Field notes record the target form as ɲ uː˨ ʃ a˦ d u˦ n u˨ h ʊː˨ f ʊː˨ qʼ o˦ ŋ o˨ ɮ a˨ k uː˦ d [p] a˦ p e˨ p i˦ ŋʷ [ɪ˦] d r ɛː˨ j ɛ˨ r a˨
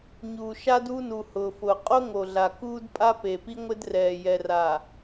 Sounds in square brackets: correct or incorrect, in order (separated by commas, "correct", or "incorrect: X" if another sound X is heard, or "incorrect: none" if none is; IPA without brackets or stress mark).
incorrect: pʼ, correct